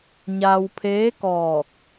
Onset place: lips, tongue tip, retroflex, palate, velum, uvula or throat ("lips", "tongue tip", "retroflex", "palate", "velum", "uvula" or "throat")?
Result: palate